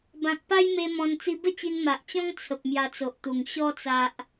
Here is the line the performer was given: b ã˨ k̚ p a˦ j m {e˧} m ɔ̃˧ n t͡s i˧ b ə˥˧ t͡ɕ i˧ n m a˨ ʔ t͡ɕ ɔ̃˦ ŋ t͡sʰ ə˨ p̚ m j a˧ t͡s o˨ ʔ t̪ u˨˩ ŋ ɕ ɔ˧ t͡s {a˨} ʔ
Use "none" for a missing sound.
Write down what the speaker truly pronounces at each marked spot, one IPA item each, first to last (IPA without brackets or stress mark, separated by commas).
e˧, a˨